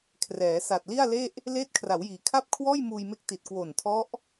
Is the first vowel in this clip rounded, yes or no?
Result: no